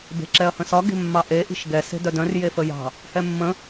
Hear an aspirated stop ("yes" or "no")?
no